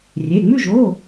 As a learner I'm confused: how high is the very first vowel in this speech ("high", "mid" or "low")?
mid